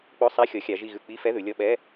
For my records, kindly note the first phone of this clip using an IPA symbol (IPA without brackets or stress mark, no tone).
k͡p